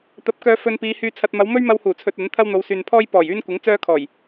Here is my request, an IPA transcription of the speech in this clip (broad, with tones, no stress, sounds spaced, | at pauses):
t̪ ɐ˨˥ p̚ k œː˧ f ɵ˧ n p iː˨˧ h yː˧ t͡sʰ ɐ˧ t̚ m ɐ˨˧ w m ɵ˥ ɥ m ɐ˧ w h uː˨˩ t͡sʰ ɵ˧ t̚ ɐ˨˥ n t̪ʰ ɐ˥ w n̪ o˨˧ w s yː˨ n pʰ ɔː˥ j p ɔː˨˩ j yː˥ n kʷ ɪ˨˥ ŋ t͡s œː˥ kʰ ɔː˨˩ j